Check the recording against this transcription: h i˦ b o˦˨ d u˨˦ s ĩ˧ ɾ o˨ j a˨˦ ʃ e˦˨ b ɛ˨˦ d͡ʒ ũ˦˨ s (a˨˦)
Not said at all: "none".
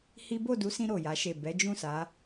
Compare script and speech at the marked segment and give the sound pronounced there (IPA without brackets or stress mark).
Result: a˨˦